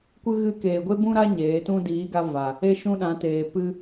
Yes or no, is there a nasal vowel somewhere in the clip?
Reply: yes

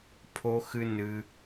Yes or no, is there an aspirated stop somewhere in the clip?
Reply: yes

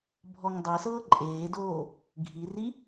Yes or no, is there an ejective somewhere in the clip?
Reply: yes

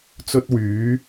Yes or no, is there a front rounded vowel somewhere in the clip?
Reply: yes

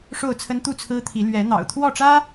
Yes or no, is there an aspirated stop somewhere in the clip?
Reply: yes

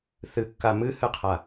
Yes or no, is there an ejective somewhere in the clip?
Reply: no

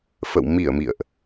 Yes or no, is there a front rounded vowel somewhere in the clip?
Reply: no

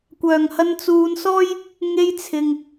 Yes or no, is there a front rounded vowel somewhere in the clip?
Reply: yes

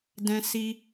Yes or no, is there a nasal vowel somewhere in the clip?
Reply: yes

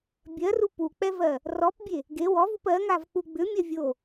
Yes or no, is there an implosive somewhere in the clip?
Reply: no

